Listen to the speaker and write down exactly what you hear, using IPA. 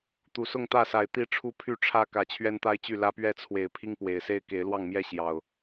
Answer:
t̪ u˨˩ s ʊ˥˨ ŋ t̪ ä˥˨ s a˨˩ ɪ̯ t̪ i˥˨ ʈ͡ʂʰ u˦ pʰ y˥˨ ʈ͡ʂʰ ä˦ k ä˨˦ t͡ɕʰ ɥ ɛ˦ n t̪ a˦ ɪ̯ t͡ɕ y˥˨ l ä˦ p ɥ ɛ˦ t͡sʰ w e˨˦ ɪ̯ pʰ i˦ ŋ p w e˨˩ ɪ̯ s e˥˨ ɪ̯ k e˨˦ ɪ̯ l w ɑ˥˨ ŋ m j ɛ˥˨ ɕ j ɑ˨˩ ʊ̯

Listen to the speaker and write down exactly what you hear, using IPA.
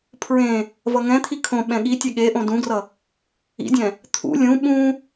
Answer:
pʰ ɹ ẽ | v ʌ ŋ ɛ̃ t̪ʰ i kʰ õ ɓ ɛ̃ ɠ i tʲ ɛ ɠ e ʔ õ d ũ ɡ r ʌ | ḭ dʲ ɛ̃ | t̪ʰ ṵ lʲ ũ ɓ ũ

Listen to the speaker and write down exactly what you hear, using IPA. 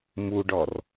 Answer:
m u ɖ ɔ r

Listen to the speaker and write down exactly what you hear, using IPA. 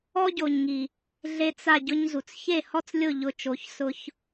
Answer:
ɔ˦ ɟ o˨ ɲ ŋ i˨ | ɮ e˧ t͡s a˦˨ ɟ ʊ˦ ɲ z u˨ t͡s ç e˦˨ h ɔ˦ t͡s lʲ ʊ˦˨ ʎ ʊ˧ t͡ʃ o˨˦ ç s ʊ˦ ç

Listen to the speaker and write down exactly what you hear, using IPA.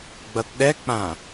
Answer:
ɡ͡b ʌ t ɗ ɛ k͡p ã

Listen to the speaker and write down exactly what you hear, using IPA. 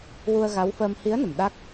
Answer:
w u˧ ə̯ ɣ a˧˥ w f əː˧ m h i˧˥ ə̯ n ə˨˩ m ɗ a˦˥ k̚

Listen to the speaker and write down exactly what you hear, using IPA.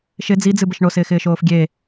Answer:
ʃ ɪ d͡z i d͡z ɨ b ə ʃ ɳ o s ɪː x ɪː ʃ oː f ɡʲ e

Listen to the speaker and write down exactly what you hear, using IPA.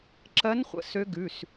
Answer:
ǁ ɜ˧˥ n χʷ ə̰˩˧˩ s ø˧˥ ɡ ʉ˩˧˩ s

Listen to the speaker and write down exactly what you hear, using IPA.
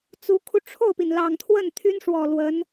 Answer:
t͡s u˧˥ kʰ u˧ ʈ͡ʂʰ o˥˩ ʊ̯ p i˩ n l ɑ˨˩ ŋ t̪ʰ w ə˥˩ n t̪ʰ y˥ n ʂ w ɔ˨˩ l w ə˧˥ n

